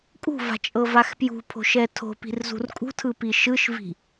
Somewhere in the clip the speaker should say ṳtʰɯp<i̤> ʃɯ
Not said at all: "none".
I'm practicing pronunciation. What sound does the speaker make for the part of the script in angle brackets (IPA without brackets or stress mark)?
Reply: i